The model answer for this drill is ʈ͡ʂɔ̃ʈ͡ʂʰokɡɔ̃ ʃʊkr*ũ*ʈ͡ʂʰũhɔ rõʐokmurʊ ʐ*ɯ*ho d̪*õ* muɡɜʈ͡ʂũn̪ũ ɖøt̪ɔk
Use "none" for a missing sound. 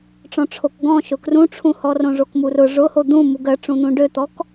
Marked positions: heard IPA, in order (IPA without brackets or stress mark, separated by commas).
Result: ũ, ʊ, ũ